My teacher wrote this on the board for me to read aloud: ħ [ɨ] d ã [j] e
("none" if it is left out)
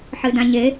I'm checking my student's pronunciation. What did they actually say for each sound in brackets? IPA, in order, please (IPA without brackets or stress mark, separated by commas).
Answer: ɨ, ɲ